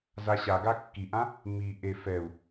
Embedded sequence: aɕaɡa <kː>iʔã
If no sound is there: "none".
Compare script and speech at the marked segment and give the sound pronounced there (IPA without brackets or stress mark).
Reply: kː